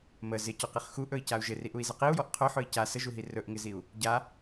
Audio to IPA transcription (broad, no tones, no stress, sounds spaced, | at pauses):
m ə z ɪ c ɔ q i χ x u ʔ ɵ i̯ c a u̯ ʒ ɪ r i ʔ u i̯ z ə q i u̯ j ɔ ʔ qʰ ɵ ħ ɵ i̯ c a s ə ʒ u ɦ i r ɵ ʔ ŋ ɪ z i u̯ | ɟ a